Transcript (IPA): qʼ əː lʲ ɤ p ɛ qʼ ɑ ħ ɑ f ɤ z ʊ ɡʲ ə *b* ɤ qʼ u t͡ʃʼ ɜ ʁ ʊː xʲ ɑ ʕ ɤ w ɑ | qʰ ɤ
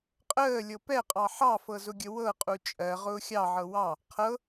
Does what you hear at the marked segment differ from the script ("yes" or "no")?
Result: yes